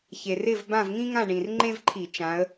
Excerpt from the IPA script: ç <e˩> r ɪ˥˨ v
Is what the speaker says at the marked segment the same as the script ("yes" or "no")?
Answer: yes